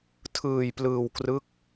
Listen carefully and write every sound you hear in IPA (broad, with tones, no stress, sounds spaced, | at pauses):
tʰ ɯː˧ j p l ɯː˧ w k r ɯ˦˥ k̚